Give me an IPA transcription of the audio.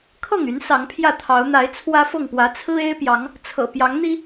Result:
kʰ ɤ˥˨ ŋ y˨˦ n s ɑ˨˦ ŋ pʰ j ä˥˨ t̪ʰ ɑ˨˦ ʊ̯ n̪ a˨˦ ɪ̯ t͡sʰ w ä˦ f ɤ˥˨ ŋ p w ä˨˦ t͡sʰ ɹ̩˦ e˦ ɪ̯ p j ɑ˨˦ ŋ | t͡sʰ ɤ̰˨˩ p j ɑ˨˦ ŋ n̪ i˦

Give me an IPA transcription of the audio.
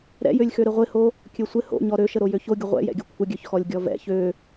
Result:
ɾ ɛ̰ j ø lʲ x ø ɾ ɪ ʁʷ ɪ h o | kʲ ø sʷ ɪ h o̰ ɲ ɔ ɾ ø ʃ ə ɾ o j ø ç o ɡʲ ə ʁʷ ɛ̰ j ɛ̰ ɡʲ ə kʷʰ ə ɡʲ ø ç x ɔ lʲ ɡʲ ɔ v ɛ̰ ç ø

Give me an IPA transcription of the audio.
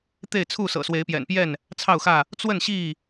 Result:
t̪ e˥˨ ɪ̯ t͡sʰ u˥˨ s ɤ̰˨˩ s w e˨˦ ɪ̯ p j ɛ̰˨˩ n p j ɛ˥˨ n | t͡sʰ ɑ˥˨ ʊ̯ x ä˥˨ | t͡s w ə˥˨ n ɕ i˥˨

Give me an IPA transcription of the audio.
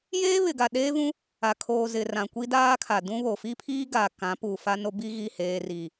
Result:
j eː˦ β ɪ˨ ɡ a˨ ɗ eː˦ v ũ˦ | a˨ kʰ oː˨ z ɪ˨ r ã˨ kʷ i˦ d aː˦ kʰ a˨ d ũ˦ β o˨ f i˦ pʰ iː˦ ɡ a˨ k ã˨˦ p uː˨ f a˦ n o˦ b i˦ ɣ i˦˨ h eː˨ r i˨

